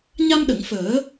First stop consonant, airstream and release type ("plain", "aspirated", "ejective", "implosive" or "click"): implosive